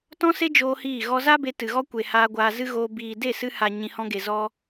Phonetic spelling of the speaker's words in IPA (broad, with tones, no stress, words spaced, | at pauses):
tɔ̃˦se˦ d͡ʒoː˦hiː˦˨ ɣɔ˧za˦be˧ tɨ˨ɣɔ˦kʷe˨ haː˧ɡʷaː˧zɨ˦ɣoː˧ biː˨de˦˨sɨ˧ha˨ ɲĩ˨hɔ̃˧ɡe˨ zɔ˧